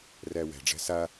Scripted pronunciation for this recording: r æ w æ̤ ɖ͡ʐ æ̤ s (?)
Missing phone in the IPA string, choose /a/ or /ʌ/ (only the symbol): a